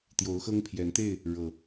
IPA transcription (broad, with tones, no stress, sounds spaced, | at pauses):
t̪ j o˨˦ ʊ̯ x ɤ˦ ŋ pʰ j ɛ˨˦ n t̪ e˥˨ ɪ̯ | ɻ ɤ˨˩